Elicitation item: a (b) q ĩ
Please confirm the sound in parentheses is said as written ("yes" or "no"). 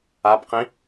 yes